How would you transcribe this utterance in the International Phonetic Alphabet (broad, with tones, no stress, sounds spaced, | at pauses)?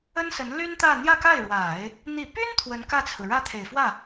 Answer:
ə˥ n s ə˧˥ n l y˥ n t̪ ä˥˧ n̪ j ä˥˧ k a˥˩ ɪ̯ ɻ w a˨˩˦ ɪ̯ | n̪ i˨˩ p y˥ n t̪ʰ w ə˧˥ n k ä˥˩ t͡sʰ ɹ̩˩ ɻ ä˥ t̪ʰ e˨˩ ɪ̯ f w ä˥˩